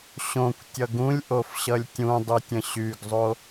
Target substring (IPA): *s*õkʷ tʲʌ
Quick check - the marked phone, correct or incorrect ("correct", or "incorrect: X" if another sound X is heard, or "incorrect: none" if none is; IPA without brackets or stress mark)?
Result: incorrect: ɕ